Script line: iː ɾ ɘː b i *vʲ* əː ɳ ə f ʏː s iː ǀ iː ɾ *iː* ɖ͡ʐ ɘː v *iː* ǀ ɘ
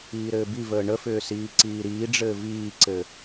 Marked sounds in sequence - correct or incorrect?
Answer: incorrect: v, correct, correct

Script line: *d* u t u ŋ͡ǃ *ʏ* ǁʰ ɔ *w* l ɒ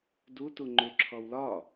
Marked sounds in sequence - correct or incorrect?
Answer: correct, correct, correct

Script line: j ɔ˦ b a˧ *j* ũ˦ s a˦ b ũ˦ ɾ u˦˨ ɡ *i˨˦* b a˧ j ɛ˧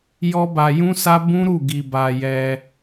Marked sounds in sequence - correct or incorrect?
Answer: correct, incorrect: i˧

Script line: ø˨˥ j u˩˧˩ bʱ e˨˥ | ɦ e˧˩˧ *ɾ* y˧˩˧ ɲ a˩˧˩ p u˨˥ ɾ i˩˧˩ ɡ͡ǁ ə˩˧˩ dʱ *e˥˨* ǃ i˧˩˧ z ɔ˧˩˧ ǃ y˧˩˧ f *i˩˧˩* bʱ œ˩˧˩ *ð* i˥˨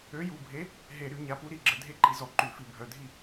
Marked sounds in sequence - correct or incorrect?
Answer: correct, correct, incorrect: i˧˩˧, incorrect: dʱ

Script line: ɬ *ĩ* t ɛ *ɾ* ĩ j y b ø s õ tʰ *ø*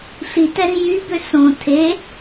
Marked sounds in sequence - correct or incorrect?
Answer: incorrect: i, correct, incorrect: e

